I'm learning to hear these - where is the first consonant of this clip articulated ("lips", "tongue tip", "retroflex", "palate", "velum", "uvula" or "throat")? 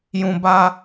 palate